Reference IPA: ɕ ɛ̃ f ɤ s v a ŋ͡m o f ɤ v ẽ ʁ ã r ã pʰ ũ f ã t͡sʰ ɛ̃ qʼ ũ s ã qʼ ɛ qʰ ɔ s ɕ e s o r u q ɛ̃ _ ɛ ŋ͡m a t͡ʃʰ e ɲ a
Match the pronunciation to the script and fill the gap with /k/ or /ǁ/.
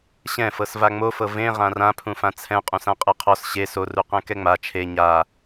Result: k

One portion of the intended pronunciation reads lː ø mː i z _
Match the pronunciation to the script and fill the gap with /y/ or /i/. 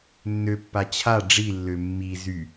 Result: y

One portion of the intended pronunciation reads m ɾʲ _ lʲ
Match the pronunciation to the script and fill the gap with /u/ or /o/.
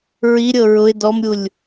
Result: u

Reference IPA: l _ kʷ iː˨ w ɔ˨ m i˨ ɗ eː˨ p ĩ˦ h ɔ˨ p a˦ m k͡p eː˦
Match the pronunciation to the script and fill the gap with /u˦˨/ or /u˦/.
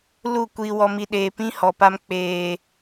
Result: u˦˨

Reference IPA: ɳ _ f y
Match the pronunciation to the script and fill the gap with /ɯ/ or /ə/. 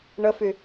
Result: ə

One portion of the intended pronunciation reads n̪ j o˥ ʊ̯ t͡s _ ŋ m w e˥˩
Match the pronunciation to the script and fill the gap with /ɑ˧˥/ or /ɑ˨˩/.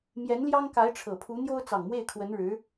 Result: ɑ˨˩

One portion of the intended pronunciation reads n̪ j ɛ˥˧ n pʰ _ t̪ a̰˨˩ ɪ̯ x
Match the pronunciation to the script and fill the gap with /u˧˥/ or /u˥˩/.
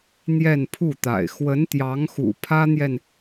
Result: u˥˩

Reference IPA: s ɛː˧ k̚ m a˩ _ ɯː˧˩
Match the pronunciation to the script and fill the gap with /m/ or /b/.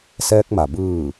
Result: b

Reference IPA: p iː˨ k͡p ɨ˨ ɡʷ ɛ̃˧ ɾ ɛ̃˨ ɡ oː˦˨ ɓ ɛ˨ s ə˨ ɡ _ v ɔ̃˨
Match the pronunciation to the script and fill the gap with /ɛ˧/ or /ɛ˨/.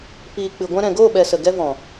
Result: ɛ˧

